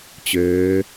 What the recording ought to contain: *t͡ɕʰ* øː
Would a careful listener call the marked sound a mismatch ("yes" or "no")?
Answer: yes